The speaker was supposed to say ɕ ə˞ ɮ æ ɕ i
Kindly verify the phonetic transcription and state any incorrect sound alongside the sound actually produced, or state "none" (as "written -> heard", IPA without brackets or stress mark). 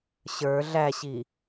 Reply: none